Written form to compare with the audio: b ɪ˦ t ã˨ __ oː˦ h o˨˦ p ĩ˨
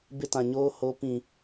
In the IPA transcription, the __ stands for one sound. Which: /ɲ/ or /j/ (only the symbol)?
ɲ